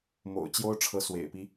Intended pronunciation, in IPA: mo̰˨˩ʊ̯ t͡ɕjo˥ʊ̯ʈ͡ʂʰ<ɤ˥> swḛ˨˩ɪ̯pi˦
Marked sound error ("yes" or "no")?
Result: yes